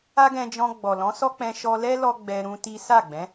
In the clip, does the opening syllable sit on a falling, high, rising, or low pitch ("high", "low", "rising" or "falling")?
high